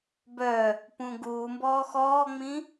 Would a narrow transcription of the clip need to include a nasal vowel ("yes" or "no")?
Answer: yes